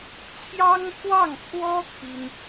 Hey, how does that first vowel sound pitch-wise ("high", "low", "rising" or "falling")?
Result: high